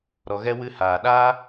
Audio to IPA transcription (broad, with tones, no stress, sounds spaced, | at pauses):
ɾ ɔ˧ ɣ ɛ˦ w ɨ˧ h aː˨ ɗ aː˦